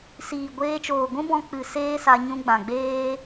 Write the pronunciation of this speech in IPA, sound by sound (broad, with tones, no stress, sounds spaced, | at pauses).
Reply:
s iː˨ ɡʷ eː˧ t͡ʃ oː˨ ɡʷ ũ˦ b ɔ̃˧ k͡p ɨ˨ s eː˦ s a˧ ɲ ũ˧ ɡ͡b ã˨ ɡ͡b eː˦